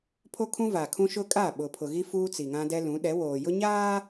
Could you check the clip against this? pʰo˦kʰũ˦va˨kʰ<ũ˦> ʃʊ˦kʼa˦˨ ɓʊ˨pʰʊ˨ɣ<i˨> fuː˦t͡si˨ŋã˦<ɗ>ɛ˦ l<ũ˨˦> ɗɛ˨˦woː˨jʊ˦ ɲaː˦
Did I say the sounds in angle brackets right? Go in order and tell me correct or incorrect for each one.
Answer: correct, incorrect, incorrect, correct

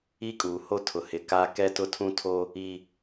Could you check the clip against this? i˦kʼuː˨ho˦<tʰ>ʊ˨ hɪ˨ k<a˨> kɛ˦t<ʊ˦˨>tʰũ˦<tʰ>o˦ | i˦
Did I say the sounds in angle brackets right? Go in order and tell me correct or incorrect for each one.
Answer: correct, incorrect, incorrect, correct

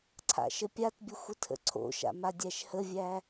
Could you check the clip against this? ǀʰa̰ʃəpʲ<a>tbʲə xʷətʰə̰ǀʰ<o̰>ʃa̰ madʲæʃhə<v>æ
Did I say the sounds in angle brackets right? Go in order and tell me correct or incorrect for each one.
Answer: correct, correct, incorrect

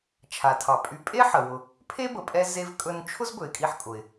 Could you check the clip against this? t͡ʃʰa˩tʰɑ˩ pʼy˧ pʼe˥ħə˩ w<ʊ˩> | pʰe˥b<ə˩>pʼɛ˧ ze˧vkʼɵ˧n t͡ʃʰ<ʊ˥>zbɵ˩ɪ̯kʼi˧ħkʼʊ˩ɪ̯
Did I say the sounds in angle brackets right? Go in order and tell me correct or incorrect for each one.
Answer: correct, correct, correct

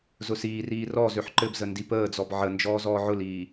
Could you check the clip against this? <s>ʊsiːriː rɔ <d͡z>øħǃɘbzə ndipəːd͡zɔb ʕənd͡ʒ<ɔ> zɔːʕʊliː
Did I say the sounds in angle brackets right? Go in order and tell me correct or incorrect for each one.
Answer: incorrect, incorrect, incorrect

